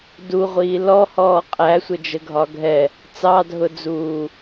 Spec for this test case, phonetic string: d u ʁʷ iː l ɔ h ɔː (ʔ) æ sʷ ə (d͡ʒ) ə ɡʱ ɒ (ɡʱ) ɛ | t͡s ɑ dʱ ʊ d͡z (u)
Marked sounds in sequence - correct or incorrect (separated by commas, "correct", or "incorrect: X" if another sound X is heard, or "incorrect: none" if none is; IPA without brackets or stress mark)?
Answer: incorrect: qʼ, correct, correct, incorrect: uː